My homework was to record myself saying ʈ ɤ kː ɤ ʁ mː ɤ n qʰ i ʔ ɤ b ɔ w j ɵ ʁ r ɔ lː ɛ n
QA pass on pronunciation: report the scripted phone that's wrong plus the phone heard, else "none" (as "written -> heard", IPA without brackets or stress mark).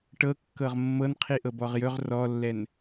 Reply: w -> ʁ